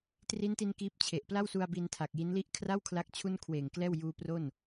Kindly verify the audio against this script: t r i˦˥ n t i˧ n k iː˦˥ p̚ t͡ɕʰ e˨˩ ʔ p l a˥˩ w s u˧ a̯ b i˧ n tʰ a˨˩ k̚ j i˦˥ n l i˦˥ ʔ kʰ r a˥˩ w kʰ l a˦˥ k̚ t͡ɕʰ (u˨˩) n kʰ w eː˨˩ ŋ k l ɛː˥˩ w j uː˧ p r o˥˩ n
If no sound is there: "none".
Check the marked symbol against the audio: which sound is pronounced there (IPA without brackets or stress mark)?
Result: u˥˩